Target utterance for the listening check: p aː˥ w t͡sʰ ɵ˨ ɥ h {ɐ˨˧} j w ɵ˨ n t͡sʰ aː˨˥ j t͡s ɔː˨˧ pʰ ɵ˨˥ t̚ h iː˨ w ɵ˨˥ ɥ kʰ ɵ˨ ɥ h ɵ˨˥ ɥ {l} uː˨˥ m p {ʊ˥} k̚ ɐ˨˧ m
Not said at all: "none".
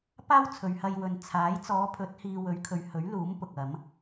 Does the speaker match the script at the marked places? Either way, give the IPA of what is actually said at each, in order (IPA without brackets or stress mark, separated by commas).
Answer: ɐ˧, l, ʊ˨